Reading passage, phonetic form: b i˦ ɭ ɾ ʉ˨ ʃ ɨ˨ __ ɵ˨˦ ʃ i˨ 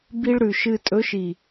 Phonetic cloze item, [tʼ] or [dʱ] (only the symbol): tʼ